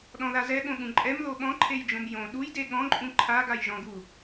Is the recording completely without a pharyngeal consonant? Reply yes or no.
yes